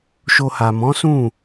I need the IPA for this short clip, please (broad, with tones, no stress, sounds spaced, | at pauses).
ʃ o˧ h a˨ m ɔ̃˨˦ s ũ˦˨